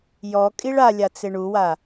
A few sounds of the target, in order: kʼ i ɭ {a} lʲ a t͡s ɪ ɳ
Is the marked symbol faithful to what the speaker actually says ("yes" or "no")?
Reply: yes